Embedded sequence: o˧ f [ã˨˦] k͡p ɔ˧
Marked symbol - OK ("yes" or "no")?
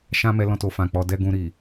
no